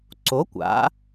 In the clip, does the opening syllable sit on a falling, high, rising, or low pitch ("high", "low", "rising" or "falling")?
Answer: rising